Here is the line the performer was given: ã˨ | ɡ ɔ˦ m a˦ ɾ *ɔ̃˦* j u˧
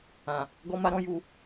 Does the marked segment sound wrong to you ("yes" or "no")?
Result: no